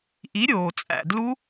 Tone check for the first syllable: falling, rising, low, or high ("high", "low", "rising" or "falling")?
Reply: rising